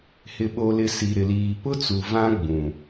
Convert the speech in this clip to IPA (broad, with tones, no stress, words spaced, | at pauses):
hɪ˨ɓo˨lɪ˨ si˨ɾɪ˨liː˨ pʊ˦t͡su˨ vã˦ɡ͡bũ˨